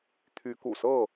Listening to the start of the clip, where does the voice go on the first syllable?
rising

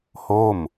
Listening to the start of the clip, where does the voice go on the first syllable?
falling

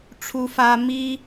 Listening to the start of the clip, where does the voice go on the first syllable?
high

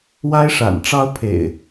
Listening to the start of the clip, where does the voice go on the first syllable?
high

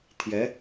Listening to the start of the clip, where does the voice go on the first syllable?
rising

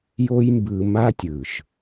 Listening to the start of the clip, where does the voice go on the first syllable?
high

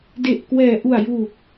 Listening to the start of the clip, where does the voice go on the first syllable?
low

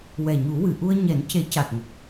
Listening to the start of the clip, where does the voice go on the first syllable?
low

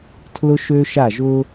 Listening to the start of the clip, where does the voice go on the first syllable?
high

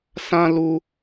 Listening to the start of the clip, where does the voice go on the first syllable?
high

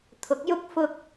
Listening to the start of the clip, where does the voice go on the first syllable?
rising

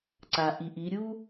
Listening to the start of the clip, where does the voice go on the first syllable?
low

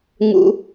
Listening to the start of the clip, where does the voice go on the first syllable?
low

